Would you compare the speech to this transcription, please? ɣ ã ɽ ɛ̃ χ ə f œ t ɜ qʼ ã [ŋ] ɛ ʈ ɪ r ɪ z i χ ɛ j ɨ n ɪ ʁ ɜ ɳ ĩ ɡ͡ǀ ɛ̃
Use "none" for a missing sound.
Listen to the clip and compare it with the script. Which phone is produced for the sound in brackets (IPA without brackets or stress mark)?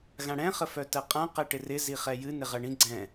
q